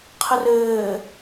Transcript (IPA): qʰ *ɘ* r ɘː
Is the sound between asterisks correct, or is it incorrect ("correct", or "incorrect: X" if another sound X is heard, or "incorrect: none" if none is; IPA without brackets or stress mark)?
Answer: correct